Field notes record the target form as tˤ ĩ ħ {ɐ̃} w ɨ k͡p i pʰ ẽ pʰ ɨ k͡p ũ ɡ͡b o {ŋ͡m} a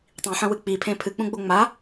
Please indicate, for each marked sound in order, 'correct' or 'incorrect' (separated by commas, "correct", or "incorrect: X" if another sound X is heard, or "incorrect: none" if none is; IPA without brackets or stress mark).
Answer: correct, correct